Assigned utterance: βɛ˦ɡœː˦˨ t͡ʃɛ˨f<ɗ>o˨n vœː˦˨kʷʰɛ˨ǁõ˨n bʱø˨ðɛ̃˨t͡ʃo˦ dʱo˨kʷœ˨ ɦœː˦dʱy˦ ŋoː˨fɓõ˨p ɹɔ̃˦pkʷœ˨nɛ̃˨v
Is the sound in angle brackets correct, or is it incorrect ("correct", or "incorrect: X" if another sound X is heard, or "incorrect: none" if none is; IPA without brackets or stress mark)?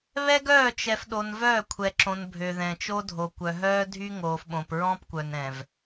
correct